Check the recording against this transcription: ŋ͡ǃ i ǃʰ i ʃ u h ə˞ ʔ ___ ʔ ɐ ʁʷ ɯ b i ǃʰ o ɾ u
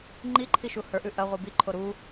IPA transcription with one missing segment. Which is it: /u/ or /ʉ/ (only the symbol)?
ʉ